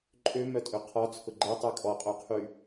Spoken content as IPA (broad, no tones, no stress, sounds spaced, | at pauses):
ǃʼ ø m œ tʼ ø qʰ ɔ t͡sʰ ʊ ɡ͡ǃ ɛ tˤ ɛ kʼ ɔ qʼ o qʰ y